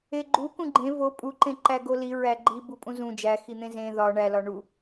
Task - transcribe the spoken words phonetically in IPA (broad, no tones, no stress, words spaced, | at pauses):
eɡ͡ǃu kũɡ͡ǃẽ vo pʼuǃẽ ǃæɡoli ɹæɡ͡ǃi bupʼũzũ d͡ʒæxin̪ẽ zẽ ðɒ ɳælɒ ɳu